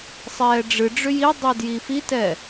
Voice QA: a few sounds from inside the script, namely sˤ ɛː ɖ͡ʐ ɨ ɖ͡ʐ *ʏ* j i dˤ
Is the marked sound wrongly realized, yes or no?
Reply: no